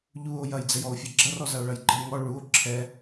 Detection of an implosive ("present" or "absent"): absent